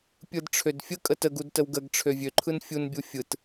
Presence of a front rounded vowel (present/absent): present